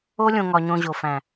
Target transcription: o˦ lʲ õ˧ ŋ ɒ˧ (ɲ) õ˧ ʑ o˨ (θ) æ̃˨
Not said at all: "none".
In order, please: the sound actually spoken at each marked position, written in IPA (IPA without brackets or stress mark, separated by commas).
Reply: ɲ, f